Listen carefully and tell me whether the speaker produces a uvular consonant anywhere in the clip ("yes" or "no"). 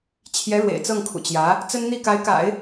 no